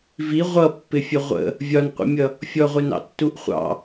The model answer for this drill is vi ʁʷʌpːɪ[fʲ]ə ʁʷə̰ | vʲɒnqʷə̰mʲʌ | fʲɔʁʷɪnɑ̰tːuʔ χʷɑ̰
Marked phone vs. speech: correct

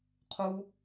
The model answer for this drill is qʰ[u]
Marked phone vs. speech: correct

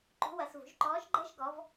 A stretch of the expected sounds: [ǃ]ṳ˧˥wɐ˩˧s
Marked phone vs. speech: correct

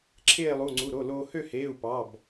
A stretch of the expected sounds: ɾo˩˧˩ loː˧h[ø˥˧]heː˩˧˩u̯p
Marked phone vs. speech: correct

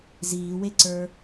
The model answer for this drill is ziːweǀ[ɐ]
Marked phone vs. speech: incorrect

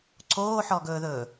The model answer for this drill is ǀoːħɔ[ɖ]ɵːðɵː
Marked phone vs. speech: incorrect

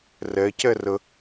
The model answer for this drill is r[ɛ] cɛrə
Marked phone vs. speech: correct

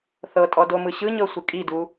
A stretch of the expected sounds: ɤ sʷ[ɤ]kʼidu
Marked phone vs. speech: incorrect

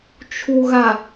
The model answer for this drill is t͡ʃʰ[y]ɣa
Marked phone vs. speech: incorrect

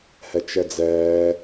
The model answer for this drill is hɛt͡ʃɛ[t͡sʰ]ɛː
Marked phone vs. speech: incorrect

